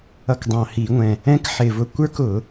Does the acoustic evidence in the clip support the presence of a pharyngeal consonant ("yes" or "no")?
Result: yes